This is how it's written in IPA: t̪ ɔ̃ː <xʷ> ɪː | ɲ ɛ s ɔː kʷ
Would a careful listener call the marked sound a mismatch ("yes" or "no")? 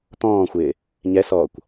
no